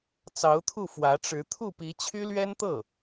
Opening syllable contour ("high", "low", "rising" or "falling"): rising